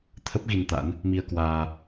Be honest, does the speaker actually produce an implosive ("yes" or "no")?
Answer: no